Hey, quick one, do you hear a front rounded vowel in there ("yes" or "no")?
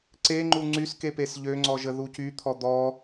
yes